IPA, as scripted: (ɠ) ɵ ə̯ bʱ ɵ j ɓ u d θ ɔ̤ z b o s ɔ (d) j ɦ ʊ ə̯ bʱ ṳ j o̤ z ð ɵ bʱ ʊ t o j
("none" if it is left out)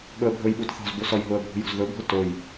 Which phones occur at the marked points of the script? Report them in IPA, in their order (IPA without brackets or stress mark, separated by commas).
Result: ɠ, none